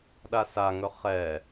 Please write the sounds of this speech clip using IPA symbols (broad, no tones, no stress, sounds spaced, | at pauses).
ɗ a s a ŋ ɵ χ ɛ